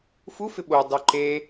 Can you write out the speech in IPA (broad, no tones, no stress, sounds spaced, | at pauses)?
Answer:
f u f ɪ ɓ o dˤ u ǃ e